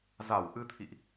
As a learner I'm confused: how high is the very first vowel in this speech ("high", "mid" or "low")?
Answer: low